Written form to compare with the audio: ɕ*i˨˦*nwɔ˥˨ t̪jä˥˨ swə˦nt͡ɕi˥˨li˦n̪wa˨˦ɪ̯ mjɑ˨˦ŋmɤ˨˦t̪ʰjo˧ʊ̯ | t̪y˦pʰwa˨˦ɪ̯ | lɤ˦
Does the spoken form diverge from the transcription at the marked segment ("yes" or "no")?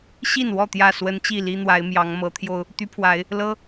yes